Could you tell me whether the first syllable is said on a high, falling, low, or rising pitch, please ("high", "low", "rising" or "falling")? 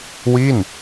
falling